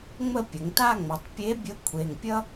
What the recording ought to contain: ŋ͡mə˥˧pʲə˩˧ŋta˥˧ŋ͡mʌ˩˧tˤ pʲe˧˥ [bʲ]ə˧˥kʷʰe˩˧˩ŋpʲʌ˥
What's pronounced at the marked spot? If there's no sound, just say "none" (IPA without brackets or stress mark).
bʲ